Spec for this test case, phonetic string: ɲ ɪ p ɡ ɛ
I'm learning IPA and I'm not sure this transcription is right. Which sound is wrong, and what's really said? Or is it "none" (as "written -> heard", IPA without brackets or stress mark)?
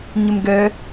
p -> m